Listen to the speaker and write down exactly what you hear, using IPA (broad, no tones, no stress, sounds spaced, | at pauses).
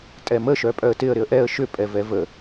tʼ ɛ m ə ʃ œ pʼ œ ə̯ t ɪ ə̯ ɾ ɪ ə̯ ʔ ɛ ə̯ ʃ ʏ pʼ ɛ v ɛ v ə